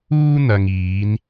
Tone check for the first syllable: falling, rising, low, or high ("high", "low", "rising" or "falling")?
high